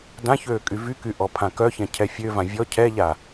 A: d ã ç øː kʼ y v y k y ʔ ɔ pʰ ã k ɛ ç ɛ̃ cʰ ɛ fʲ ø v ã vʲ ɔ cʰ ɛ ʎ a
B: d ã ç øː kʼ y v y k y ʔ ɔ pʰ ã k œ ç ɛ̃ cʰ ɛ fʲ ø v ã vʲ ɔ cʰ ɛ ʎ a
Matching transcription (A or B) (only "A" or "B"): B